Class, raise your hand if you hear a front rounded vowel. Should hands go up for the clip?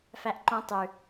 no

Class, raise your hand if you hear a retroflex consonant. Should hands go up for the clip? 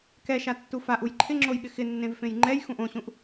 no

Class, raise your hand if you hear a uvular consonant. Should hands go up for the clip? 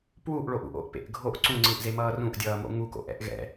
no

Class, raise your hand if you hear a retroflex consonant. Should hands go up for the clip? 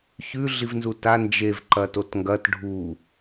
yes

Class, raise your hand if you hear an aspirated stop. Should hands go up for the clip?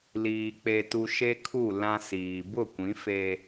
yes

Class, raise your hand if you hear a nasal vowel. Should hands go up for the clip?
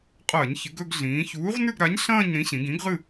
yes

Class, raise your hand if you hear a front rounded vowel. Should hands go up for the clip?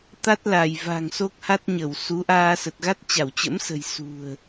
no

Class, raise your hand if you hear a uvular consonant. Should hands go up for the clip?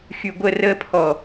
no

